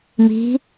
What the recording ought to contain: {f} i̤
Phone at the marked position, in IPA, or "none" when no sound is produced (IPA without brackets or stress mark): m